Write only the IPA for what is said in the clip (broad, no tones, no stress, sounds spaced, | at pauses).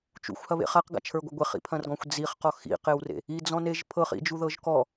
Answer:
t͡ʃ ṵ xʷ h ɐ β ḛ χ a q ɡ a̰ t͡ʃʰ ə˞ ɡʷ ɐ ɡʷ e χ ḭ pʰ ɐ̃ r ɡ ɔ̃ xʷ d͡z i χ q ɔ x ḭ q e w r ḛ | i d͡z ɔ̃ n e ʒ pʰ ɤ χ ḭ d͡ʒ u ð ɤ ʒ k ɔ